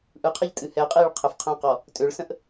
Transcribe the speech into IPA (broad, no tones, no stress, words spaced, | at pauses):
ʔɯqʰɛʎtʼɨ hɛ qʼiɭ qʰəfqʰə̃ːqɔ | tʼøɭsə̃ʔ